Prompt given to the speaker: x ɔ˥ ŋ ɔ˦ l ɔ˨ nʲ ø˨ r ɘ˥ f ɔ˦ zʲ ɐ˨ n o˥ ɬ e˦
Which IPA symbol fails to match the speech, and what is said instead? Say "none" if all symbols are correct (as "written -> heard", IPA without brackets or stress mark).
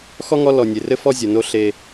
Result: ø˨ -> e˨